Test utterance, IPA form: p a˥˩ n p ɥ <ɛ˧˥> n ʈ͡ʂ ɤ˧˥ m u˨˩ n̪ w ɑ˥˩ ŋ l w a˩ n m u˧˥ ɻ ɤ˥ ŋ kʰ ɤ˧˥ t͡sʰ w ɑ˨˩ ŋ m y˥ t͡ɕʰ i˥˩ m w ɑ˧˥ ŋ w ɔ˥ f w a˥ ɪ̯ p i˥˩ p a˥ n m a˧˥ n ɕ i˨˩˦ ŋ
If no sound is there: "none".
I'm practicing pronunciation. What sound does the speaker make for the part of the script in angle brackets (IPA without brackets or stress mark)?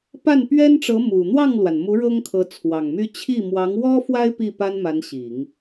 ɛ˥